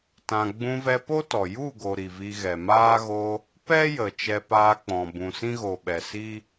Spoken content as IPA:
tã˨ ɡ͡bũ˧vɛ˧po˦tɔ˨ ju˦˨ɡo˨ ɾi˨vi˧ɣɛ˨ maː˦ ɣo˧ | pɛ˦jə˨ t͡ʃɛ˧paː˧k͡pɔ̃˨ bũ˨sĩ˦ɣo˨ɓɛ˨ si˦

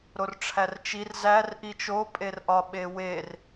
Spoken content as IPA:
ɾorʈ͡ʂʰært͡ʃir zær ʔit͡ʃo pʼerʔɒ ɓewer

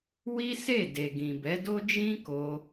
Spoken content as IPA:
wi˦se˦˨ de˨ɡĩ˨bɛ˨˦do˦ d͡ʒĩ˦ko˧

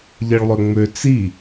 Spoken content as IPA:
ʎeɭlˠøŋ͡mø t͡si

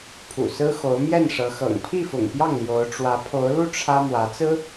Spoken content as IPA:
pʰṵ˨˩sɹ̩˥xo˧˥ʊ̯ mjɛ˥˩nʂɤ˧˥xɤ̰˨˩ŋ pʰi˥˩fʊ̰˨˩ŋpjɑ˥˩ŋ ljo˧˥ʊ̯ʈ͡ʂwä˧˥ pʰo˧˥ʊ̯lu˥˩ ʈ͡ʂʰä˥ mwä˧˥t͡sɹ̩˥

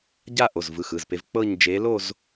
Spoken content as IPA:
ɟa˥˧ʔo˩˧˩zvɯ˩˧˩ xɯ˩˧˩zpe˨˦v k͡pɤ˥˧ɲ d͡ʒe˨˦lo˥˧z

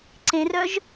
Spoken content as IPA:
ǀẽrœʒ

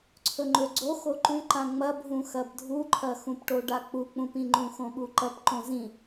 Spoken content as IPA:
ǀʰɵŋ͡ǃɵɡ͡ǀo xoǃʉǃã ŋ͡mɐbʱũxɐb dʱuǃʰɐxũpʈo ɖak͡puk͡pũpĩ ŋ͡ǃũxõɓuǃɐp ǃõzĩ

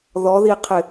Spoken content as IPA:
ðɔðiqʰɪ

